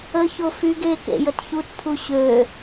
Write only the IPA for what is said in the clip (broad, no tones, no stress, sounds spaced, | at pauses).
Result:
ə ç o f y ɡ e k ḛ j ə t ç u t pʰ u ɕ ø